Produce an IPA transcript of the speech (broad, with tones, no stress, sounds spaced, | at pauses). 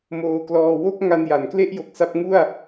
m oː˧ k l ɔː˧ w o˥˩ k̚ ŋ a˧ n j a˩˦ n k l e˥˩ ʔ j o˨˩ k̚ s a˦˥ p̚ ŋ u˥˩ a̯